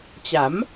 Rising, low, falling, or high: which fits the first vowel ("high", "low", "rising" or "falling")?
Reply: rising